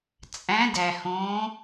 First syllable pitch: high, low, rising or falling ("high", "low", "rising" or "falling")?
rising